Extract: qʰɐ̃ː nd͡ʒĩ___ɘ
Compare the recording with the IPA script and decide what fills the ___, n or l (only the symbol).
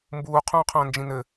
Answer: n